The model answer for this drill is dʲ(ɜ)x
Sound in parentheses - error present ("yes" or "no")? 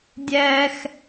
yes